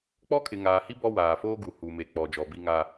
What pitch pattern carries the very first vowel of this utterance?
high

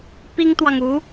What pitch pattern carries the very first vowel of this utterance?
high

